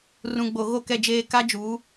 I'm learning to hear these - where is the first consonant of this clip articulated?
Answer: tongue tip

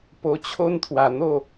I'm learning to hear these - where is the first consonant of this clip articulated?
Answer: lips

